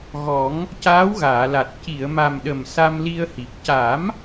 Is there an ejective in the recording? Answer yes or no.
no